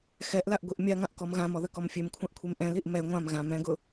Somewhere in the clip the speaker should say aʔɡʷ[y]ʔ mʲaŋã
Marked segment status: incorrect: i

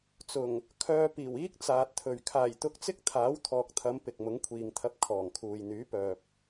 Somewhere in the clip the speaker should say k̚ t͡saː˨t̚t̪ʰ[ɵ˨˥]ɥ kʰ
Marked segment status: incorrect: ɵ˨˩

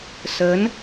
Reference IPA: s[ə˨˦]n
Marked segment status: correct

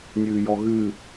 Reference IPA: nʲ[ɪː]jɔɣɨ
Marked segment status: incorrect: ɨː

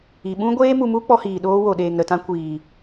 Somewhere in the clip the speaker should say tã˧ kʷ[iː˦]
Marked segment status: incorrect: iː˨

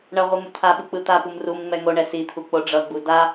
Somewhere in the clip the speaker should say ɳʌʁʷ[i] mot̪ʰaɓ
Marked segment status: correct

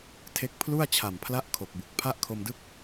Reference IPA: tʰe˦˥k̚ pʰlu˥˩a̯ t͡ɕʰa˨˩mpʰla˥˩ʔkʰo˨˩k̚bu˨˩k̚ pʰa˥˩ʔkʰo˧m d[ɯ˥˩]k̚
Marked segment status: correct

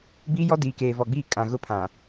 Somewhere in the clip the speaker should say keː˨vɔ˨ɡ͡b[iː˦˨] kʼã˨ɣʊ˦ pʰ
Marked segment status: correct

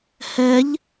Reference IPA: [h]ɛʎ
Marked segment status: correct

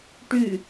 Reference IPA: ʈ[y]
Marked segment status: correct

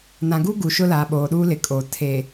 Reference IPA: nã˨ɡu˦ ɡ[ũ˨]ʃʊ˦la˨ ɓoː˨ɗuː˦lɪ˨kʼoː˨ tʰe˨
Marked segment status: incorrect: u˨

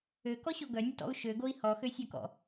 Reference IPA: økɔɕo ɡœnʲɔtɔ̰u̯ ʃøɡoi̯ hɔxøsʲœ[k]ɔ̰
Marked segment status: correct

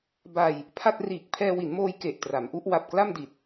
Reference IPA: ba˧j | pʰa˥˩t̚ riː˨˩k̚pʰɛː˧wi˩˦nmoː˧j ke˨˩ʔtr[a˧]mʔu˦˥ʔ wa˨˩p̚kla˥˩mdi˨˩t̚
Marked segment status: incorrect: a˩˦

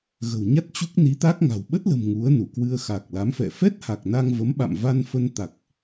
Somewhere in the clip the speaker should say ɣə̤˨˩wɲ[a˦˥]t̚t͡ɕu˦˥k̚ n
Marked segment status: correct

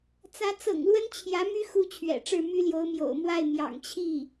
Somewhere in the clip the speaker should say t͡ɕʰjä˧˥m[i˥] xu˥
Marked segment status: incorrect: y˥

